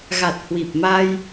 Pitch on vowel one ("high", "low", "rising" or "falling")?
low